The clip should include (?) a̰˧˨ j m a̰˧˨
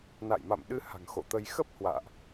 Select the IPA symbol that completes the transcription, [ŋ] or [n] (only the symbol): n